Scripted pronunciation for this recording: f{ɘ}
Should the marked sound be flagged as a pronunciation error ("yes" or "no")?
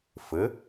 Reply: no